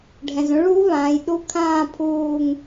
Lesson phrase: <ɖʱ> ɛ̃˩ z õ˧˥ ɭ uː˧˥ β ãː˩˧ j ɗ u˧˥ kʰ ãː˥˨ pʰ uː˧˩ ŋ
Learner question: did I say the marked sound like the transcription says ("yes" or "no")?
yes